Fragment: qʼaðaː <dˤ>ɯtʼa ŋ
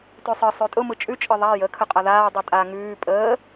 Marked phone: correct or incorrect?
correct